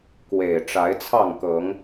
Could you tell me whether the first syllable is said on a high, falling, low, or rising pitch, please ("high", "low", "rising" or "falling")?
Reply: low